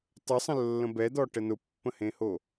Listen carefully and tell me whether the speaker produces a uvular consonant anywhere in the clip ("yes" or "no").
no